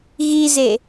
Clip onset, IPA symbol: ɣ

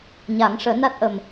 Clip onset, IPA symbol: ɲ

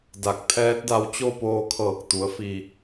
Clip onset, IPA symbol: d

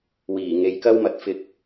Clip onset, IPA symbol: w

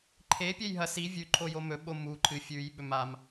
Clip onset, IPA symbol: ǃʰ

